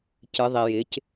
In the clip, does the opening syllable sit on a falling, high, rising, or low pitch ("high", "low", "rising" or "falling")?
rising